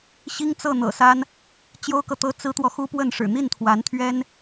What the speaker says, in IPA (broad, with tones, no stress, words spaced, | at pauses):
ɕi˥ŋt͡sɤ˥˩ n̪ɤ̰˨˩sa˥n | t͡ɕjo˥ʊ̯kɤ˨t̪ɤ˥ t͡sɹ̩˥t̪wɔ˨xu˥pwə˥˩n ʂɻ̩˨˩n̪i˥˩nt̪ʰwa˧˥nt̪ʰɥɛ˥n